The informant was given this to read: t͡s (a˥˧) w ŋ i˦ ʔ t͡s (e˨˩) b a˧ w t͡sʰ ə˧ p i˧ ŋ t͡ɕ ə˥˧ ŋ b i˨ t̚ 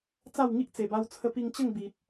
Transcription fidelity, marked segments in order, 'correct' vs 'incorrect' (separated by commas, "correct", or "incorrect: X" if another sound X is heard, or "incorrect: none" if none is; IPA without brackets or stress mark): correct, correct